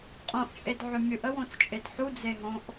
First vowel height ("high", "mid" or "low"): mid